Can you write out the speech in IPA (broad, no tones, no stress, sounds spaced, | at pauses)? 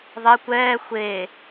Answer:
ðˤ ɪ kʷ ɛː xʷ e